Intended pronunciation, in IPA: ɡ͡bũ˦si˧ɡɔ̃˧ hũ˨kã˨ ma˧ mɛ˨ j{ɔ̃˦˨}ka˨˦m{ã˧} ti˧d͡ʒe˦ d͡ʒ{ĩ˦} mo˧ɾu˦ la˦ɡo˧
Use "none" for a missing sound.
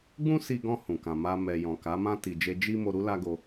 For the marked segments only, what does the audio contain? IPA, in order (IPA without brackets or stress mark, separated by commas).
ɔ̃˨, ã˦, i˦